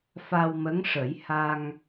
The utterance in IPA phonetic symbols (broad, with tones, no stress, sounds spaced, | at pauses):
f a˧ w m ə˧˥ ŋ ʂ ə˨˩˦ j h a˧ ŋ